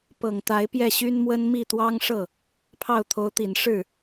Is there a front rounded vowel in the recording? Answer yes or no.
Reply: yes